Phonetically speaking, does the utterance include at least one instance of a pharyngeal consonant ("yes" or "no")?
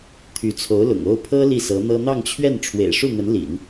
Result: no